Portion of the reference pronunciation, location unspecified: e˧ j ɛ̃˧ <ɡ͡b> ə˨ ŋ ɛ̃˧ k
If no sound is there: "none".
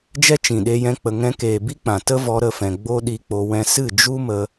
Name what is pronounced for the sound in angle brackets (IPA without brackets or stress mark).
k͡p